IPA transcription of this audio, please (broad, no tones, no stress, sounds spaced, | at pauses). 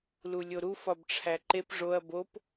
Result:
l u lʲ o ɾ u f ɒ b ʈ͡ʂʰ æ ǃ e p ʐ o ɐ̯ b o p